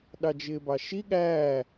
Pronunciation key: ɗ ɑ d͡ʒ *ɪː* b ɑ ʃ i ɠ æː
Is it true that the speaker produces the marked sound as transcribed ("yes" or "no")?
yes